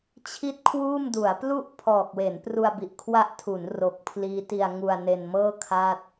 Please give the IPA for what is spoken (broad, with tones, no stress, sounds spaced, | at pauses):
t͡ɕʰ i˥˩ t̚ kʰ w uː˥˩ m d u˩˦ a̯ p l u˥˩ ʔ pʰ ɔː˨˩ k̚ w e˩˦ n p r u˧ a̯ b i˨˩ ʔ kʰ w a˦˥ ʔ tʰ u˩˦ n r o˨˩ k̚ pʰ l iː˦˥ t i˧ a̯ ŋ u˧ a̯ n e˧ n m ɤː˥˩ kʰ a˥˩ t̚